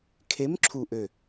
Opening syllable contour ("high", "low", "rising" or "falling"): rising